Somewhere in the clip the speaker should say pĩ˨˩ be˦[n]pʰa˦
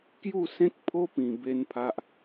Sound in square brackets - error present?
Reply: no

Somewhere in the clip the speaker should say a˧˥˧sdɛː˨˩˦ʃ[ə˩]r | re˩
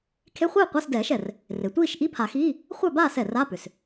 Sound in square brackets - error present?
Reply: yes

